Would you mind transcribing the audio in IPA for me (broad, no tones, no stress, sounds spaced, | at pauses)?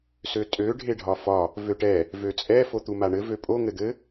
s ø tʼ ø ɖʱ e ɖʱ ɒ f ɒ | v ø ʈ ɛ | v ø t͡sʼ ɛ f o t̪ u m a ɳ ɘ v ø pʼ o ŋ ɘ d̪ ɘ